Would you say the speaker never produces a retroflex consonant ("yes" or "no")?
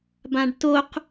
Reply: no